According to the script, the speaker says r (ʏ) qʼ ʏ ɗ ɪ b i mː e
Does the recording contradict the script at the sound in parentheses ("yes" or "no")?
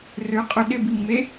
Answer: no